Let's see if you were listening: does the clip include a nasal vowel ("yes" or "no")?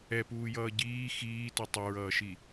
no